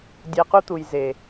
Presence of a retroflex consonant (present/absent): absent